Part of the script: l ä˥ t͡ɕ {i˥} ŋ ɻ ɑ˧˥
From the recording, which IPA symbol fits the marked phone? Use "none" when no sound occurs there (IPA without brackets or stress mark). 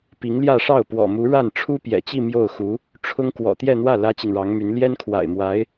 i˨